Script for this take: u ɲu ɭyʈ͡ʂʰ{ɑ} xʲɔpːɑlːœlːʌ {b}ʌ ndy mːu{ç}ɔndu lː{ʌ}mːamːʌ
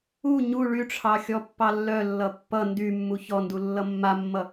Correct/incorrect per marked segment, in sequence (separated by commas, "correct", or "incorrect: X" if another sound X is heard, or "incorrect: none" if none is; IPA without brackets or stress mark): correct, incorrect: pː, correct, correct